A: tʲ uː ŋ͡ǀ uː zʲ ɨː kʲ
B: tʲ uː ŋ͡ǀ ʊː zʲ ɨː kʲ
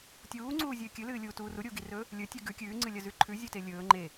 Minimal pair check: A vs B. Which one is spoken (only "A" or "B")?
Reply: A